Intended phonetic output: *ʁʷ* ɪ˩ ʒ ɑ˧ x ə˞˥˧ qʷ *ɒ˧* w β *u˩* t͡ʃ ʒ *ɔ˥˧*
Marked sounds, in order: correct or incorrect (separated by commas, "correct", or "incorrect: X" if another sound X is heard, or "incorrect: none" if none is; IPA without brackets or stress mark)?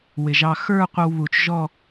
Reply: incorrect: w, incorrect: ʌ˧, correct, correct